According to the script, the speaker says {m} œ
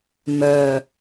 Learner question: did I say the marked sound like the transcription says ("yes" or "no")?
yes